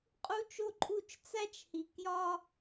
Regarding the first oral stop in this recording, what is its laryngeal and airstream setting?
ejective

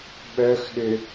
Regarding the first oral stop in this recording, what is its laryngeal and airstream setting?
implosive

